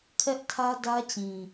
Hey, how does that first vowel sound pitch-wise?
high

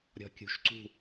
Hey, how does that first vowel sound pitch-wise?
low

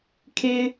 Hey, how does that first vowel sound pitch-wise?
high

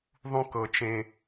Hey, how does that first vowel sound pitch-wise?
high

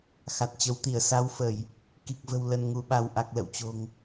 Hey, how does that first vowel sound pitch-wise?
low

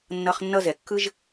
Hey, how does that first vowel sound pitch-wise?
high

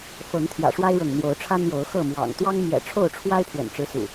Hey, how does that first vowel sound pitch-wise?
rising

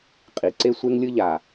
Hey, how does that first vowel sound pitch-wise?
low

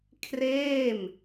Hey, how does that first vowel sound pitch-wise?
falling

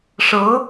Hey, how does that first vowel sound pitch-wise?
rising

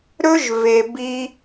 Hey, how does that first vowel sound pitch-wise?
high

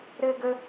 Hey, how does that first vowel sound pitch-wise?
high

